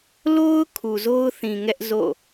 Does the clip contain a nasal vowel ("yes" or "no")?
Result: yes